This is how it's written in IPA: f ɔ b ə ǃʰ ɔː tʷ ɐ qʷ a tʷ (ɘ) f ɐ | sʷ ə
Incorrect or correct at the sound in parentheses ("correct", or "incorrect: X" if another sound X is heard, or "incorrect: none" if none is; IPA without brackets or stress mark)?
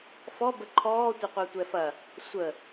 incorrect: ɛ